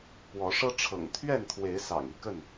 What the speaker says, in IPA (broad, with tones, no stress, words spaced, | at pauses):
pwɔ˨˦ʂɤ˦ ʈ͡ʂʰɤ̰˨˩ŋt̪ʰɥɛ˥˨nt̪ʰwe˨˦ɪ̯ sɑ̰˨˩ŋi˥˨kə˥˨n